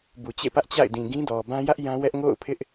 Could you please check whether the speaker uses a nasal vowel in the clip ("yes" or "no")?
yes